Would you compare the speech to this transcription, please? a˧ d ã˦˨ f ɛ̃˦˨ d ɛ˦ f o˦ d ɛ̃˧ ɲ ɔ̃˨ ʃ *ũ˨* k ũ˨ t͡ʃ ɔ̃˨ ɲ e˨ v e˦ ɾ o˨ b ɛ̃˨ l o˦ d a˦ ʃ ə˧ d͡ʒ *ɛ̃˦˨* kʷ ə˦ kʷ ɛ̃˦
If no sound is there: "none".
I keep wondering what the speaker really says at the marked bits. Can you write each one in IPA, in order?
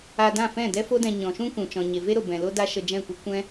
ũ˦, ɛ̃˦˨

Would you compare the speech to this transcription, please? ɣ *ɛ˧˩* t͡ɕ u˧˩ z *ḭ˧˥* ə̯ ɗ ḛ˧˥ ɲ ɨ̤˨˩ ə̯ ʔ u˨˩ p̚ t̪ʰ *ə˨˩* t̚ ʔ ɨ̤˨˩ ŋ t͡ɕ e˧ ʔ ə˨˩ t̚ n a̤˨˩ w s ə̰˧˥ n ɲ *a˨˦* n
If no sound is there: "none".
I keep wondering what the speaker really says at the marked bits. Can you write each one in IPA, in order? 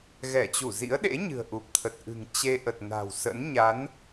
ɛ˧˩, ḭ˧˥, ə˨˩, a˨˦

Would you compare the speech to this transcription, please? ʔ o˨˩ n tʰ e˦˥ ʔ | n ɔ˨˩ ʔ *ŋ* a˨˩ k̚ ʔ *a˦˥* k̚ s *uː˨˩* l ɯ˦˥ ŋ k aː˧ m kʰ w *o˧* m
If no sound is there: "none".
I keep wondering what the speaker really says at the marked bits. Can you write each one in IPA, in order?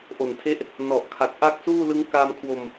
kʰ, a˦˥, uː˥˩, o˧

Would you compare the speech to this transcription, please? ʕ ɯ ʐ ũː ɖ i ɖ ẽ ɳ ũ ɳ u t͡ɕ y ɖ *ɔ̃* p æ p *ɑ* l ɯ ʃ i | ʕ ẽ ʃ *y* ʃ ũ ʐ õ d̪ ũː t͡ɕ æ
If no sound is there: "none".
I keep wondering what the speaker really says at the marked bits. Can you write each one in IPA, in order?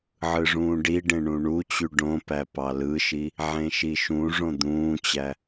õ, ɑ, i

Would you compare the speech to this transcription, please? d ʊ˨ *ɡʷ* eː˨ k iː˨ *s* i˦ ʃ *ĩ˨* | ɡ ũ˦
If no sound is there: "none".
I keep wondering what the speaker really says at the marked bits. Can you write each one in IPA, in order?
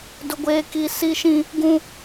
ɡʷ, s, ĩ˦

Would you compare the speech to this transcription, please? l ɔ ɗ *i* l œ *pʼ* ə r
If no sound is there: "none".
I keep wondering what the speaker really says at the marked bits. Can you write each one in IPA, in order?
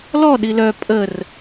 i, pʼ

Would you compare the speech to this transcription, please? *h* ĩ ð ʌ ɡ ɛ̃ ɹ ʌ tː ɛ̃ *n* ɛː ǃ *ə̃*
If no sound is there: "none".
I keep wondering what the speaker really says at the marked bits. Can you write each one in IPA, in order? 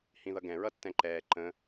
h, ǃ, ə̃

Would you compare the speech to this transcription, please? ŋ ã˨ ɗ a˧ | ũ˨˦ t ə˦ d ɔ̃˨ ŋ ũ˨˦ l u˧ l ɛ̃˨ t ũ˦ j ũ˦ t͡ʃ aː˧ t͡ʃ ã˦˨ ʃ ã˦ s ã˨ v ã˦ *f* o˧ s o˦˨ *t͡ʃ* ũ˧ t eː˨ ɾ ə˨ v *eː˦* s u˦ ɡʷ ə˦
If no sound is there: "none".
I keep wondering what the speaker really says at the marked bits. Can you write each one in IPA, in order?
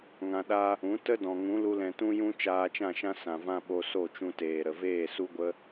ɓ, t͡ʃ, eː˦˨

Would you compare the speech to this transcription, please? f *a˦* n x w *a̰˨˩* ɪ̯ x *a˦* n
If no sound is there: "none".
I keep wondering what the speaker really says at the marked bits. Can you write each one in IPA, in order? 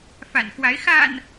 a̰˨˩, a˨˦, a̰˨˩

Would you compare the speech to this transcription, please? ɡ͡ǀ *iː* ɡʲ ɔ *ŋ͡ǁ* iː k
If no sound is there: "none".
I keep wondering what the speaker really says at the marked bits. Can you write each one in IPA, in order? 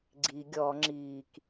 i, ŋ͡ǁ

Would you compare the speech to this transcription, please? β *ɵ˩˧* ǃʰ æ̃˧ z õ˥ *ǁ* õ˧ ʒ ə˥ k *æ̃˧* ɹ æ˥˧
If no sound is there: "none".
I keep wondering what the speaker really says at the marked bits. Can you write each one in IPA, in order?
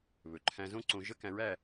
ɵ˩˧, ǀ, æ̃˧

